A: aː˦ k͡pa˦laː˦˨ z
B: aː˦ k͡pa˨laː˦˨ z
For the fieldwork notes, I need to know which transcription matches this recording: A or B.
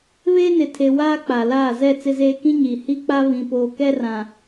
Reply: B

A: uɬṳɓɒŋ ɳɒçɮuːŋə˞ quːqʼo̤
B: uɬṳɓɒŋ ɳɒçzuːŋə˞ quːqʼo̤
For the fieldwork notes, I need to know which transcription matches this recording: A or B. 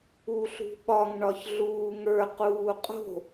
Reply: A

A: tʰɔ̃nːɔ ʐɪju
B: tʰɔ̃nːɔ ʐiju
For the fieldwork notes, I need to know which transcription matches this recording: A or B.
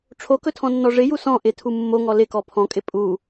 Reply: A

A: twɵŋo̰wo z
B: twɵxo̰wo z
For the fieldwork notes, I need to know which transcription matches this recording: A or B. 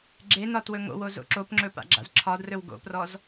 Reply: A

